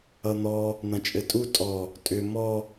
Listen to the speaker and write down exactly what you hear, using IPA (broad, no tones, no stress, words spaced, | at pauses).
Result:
ʌn̪ɔ | n̪ɐ̃t͡ʃʼɘtʼu tʼɔ | tʼʏ mɔ